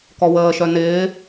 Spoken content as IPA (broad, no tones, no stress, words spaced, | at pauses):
kɔwəːʃœ nɪː